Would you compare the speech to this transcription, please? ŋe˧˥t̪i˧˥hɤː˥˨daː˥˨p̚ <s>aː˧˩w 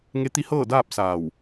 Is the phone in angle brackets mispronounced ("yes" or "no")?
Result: no